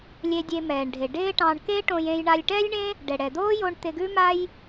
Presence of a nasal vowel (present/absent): present